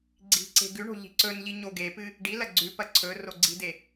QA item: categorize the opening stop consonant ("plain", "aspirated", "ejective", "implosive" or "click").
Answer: click